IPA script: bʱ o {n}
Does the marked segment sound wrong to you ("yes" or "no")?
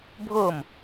yes